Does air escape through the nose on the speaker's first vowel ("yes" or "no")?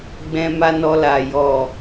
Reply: yes